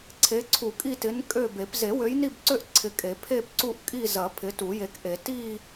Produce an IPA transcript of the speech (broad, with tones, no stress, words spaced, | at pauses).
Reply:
ǀʰe˨˦ ǀʰu˨˩˦kʼi˦˨tɪ˨˦n kʼø˦˨be˨˩˦p ze˨˩˦wø˨˦jni˦˨bǀø˦˨ʔ ǀʰɪ˨˦kʼe˨˩˦ pʰe˦˨pǀu˦˨ʔkʼi˦˨ zɐ˨˩˦ pʰɪ˨˦ tu˨˩˦je˨˦kʔe˨˩˦ ti˦˨